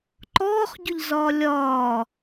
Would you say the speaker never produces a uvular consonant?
no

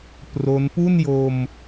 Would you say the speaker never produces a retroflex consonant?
yes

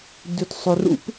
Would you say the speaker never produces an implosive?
yes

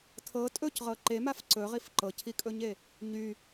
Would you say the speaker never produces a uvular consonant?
no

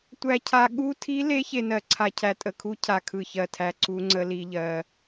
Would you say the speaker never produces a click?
no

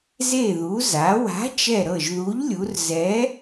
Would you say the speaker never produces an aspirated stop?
yes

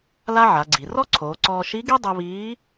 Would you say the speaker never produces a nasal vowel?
yes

